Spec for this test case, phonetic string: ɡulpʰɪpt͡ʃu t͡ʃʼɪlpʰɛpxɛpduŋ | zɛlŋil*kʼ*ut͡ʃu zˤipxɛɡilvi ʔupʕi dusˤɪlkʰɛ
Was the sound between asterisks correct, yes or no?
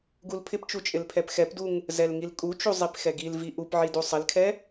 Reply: yes